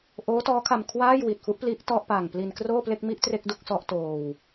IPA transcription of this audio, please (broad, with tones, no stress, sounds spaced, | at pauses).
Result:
ʔ oː˦˥ t ɔː˦˥ kʰ a˧ m kʰ w aː˥˩ j w i˨˩ t̚ f u˦˥ ʔ p l i˦˥ ʔ t ɔ˥˩ ʔ p aː˨˩ ŋ p l i˧ n k r oː˥˩ p l e˥˩ k̚ m i˥˩ ʔ t r e˥˩ k̚ d u˥˩ k̚ s ɔ˦˥ ʔ t oː˧ w